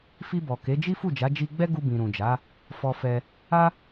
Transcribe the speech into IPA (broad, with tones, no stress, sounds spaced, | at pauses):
f i˧ b ɔ˨ k e˨˦ d͡ʒ i˦ f u˦˨ d͡ʒ a˨˦ d͡ʒ i˧ ɡ͡b ɛ˦ ɡ u˧ b ĩ˨ ɾ ũ˨ d͡ʒ a˨˦ | f ɔ˧ f ɛ˧ | a˦